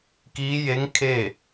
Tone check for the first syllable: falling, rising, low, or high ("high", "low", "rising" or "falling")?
rising